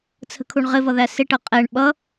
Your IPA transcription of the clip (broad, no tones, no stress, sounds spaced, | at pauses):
t͡sʰ ə̤ kʰ u ɳ ʁ ɪ v ʌ ð æ s ɪ ʈ ʌ qʼ ɛ ɳ ɓ ʌ